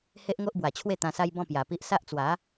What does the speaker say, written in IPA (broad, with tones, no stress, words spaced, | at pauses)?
he˦ʔŋo˦ʔbwa˨˩t͡ɕʰwe˥˧ t̪ã˧sa˦jbɔ̃˥˧ pja˨˩pi˦ʔ sa˦ʔt͡swa˨˦